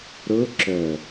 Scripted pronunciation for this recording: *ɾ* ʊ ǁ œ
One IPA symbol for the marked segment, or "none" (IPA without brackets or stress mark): ɾ